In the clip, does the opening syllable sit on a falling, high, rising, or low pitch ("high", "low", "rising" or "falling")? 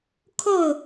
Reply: falling